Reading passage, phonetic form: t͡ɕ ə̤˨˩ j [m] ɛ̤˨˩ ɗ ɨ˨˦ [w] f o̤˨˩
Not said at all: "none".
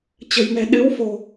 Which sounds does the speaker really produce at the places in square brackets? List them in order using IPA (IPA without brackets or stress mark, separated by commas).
m, w